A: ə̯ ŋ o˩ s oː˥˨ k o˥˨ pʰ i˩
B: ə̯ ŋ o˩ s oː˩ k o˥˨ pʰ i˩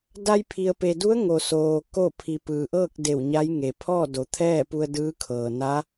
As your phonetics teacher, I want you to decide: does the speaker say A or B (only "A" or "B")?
B